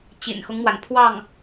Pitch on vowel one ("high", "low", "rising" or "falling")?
low